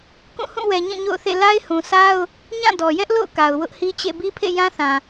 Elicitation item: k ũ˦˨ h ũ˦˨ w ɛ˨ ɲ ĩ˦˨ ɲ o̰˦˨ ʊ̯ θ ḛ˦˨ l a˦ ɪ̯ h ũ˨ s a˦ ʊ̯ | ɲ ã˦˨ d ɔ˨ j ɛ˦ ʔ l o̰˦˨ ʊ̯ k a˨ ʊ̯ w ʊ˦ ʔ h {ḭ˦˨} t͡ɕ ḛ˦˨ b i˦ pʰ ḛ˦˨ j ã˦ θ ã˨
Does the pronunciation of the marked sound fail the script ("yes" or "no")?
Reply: yes